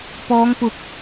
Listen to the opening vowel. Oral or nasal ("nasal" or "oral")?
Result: oral